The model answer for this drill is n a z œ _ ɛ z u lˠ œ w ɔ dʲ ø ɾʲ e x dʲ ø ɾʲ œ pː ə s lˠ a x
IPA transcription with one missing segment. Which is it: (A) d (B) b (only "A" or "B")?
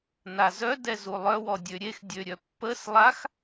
A